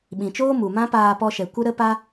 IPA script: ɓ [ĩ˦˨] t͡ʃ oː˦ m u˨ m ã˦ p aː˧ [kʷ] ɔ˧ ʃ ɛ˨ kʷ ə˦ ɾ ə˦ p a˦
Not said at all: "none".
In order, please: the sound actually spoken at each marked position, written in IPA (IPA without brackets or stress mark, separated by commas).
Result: ĩ˨, p